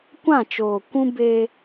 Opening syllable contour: falling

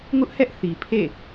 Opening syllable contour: high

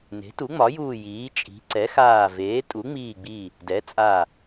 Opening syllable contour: rising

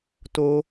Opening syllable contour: low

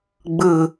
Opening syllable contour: falling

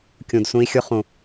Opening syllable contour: low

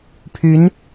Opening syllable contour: rising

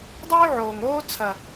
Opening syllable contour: high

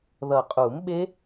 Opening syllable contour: low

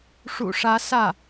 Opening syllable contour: low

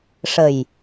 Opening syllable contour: low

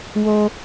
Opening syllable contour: high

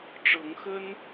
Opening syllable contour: rising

